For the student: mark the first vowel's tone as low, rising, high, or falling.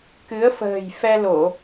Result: rising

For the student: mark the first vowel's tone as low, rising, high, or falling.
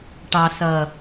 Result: low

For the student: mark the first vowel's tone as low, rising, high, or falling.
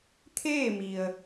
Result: falling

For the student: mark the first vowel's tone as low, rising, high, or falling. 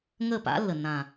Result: falling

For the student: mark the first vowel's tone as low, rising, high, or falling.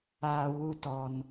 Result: low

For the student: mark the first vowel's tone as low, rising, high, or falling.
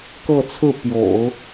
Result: falling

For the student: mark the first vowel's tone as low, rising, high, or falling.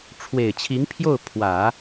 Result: low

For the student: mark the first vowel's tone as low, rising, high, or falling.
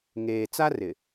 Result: low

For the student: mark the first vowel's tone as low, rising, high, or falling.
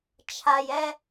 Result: low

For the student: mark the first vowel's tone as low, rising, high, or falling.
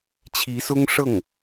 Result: rising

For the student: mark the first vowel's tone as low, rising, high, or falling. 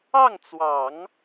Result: falling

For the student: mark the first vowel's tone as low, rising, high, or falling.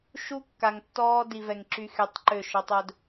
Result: high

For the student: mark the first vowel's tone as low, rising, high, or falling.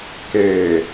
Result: low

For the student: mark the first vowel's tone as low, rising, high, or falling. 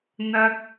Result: high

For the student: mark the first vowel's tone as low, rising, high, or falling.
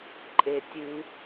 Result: low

